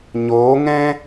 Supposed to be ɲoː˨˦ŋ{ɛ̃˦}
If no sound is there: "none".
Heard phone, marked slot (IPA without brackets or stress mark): ɛ̃˦